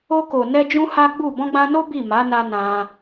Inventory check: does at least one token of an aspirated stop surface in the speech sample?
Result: no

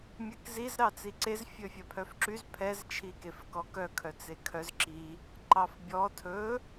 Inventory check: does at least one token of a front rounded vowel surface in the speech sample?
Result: yes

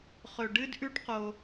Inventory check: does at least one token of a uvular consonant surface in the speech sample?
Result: yes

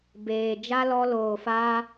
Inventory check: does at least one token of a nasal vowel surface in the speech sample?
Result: no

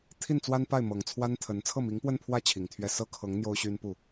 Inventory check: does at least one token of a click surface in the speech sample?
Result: no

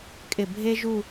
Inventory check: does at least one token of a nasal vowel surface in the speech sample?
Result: no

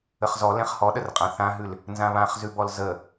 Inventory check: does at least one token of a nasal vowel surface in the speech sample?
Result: yes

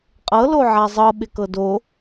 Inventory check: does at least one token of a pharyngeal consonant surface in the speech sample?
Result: yes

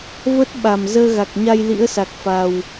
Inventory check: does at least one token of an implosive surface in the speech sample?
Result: yes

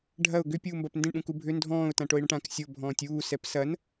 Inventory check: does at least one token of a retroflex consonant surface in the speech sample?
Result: yes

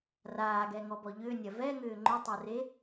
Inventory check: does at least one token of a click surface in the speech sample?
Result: yes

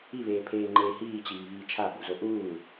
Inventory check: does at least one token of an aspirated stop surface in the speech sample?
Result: yes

